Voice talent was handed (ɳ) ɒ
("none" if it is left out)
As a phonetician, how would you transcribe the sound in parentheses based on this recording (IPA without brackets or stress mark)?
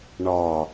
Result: ɳ